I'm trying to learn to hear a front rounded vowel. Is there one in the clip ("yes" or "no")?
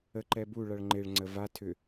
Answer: yes